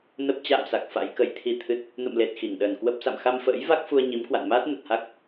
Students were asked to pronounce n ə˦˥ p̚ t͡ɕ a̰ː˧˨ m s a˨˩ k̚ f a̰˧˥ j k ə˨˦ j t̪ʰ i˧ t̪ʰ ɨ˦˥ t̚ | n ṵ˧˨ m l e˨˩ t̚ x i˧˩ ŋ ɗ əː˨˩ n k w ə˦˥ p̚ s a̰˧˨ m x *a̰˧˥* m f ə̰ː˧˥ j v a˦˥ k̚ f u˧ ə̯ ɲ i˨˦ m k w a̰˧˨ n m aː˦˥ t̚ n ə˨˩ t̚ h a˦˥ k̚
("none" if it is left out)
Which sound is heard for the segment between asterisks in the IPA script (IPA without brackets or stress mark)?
a˧